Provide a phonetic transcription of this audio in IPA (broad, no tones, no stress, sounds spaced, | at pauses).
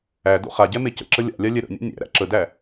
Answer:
æ d o̰ χ a ɟ ɛ m e c ə̰ ǁ ə lʲ a̰ lʲ a lʲ ɛ ɾ ə̰ nʲ a̰ nʲ æ̰ ɾ æ̰ ǁ ə d æ